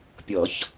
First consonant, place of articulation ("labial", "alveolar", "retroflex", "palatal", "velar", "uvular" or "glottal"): labial